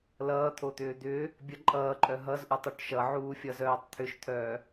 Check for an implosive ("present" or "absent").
absent